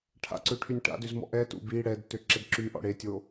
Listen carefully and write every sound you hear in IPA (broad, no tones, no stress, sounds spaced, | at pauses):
ʈʰ a̰ ǀ ø ʈʰ y nʲ ʈ a̰ d ø z m ɔ̰ ʔ ɛ t ṵ b i ɽ ɛ d t ø ǁ ɛ d ǁ y ʔ ɔ̰ ɽ e tʲ o